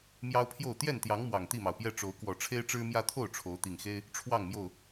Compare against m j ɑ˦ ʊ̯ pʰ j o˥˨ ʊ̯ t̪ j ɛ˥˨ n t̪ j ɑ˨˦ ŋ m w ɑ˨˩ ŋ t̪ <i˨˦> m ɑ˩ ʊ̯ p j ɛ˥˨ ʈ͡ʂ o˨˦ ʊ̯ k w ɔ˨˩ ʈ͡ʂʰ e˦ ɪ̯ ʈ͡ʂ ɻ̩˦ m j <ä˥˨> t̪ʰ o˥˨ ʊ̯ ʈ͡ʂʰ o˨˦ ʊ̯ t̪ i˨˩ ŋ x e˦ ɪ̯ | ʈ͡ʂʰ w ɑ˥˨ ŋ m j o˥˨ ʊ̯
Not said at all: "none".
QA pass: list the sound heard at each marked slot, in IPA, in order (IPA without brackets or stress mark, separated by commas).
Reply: i˥˨, ä˦